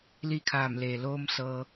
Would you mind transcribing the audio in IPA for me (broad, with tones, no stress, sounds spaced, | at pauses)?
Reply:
l iː˥˨ kʰ aː˧˩ m l eː˩ l oː˧ m s ɤː˧